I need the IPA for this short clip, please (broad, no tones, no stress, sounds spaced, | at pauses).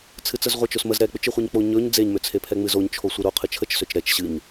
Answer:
t͡sʰ ɨ t͡s ə z ʁʷ ə t͡ʃ o s m ə z ɾ ɛ k͡p ʏ t͡ʃ ɨ χʷ e ɲ k͡p o ɲ ɵ ɲ d͡z e ɲ m ʏ t͡sʰ e pʰ ɛ ŋ͡m ɨ z o ɲ t͡ʃʰ o sʷ ɨ ɾ o qʰ ɨ t͡ʃʰ ə t͡ʃ s ø t͡ʃ ɾ ɛ t͡ʃ ɕ ɨ ɲ